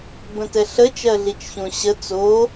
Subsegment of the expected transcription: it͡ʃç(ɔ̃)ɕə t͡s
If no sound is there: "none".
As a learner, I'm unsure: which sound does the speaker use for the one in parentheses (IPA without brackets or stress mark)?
õ